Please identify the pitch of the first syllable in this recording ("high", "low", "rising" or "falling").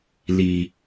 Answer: low